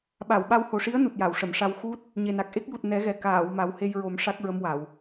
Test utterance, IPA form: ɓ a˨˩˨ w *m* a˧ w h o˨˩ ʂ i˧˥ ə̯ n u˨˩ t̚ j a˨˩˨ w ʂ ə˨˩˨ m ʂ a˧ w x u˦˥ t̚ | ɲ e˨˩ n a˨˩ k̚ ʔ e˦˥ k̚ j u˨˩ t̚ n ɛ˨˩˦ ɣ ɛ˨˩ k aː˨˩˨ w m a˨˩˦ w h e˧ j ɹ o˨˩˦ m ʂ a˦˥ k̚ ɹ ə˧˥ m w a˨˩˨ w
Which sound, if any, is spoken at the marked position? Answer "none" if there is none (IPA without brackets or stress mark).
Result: ɓ